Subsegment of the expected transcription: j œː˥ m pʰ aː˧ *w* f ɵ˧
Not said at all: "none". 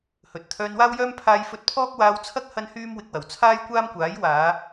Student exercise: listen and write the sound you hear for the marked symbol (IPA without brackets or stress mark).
j